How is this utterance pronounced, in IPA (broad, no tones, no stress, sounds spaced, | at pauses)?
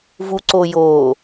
v u ǀ o j oː